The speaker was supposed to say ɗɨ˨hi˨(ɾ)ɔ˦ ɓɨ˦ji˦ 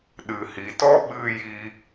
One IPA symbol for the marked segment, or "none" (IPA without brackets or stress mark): t